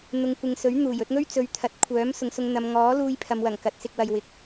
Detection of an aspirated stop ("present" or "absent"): present